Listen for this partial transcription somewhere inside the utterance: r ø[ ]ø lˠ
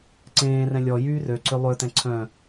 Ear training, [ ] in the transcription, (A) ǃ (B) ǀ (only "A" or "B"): B